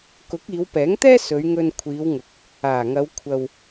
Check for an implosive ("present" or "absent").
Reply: absent